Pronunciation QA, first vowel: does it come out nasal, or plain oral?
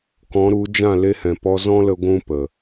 nasal